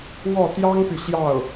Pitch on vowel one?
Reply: falling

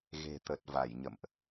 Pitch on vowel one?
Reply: low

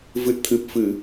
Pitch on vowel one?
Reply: low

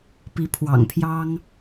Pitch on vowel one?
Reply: rising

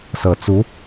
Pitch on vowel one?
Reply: low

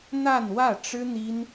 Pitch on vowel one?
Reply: falling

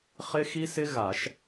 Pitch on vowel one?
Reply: high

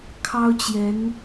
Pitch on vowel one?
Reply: high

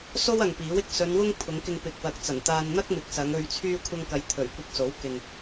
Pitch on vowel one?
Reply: high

